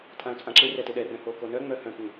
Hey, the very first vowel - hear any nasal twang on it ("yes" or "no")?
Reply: yes